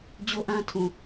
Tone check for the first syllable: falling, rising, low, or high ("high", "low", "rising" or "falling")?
high